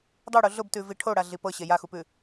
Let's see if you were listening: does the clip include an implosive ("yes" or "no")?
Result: no